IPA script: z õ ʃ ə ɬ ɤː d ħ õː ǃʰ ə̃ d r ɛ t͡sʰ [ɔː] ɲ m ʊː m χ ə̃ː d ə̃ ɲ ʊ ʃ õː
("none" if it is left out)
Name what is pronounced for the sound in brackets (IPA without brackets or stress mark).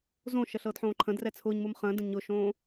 ʊː